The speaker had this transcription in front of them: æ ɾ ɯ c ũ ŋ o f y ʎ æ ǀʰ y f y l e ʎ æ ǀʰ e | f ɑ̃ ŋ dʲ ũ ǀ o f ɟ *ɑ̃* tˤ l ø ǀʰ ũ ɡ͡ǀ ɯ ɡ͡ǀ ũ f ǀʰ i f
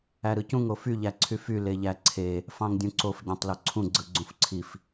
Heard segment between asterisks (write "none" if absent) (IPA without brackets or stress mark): ɑ̃